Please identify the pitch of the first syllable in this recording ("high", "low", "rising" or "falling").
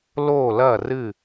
falling